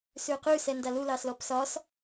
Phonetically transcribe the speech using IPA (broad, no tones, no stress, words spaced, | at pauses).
sʉy̯qʉ sɛndalu lɑslɔpsɒs